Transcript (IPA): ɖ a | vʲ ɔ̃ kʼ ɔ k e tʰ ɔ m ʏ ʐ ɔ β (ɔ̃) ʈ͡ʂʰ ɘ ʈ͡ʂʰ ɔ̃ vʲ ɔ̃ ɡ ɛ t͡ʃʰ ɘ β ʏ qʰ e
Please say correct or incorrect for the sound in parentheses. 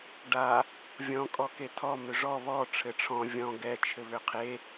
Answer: incorrect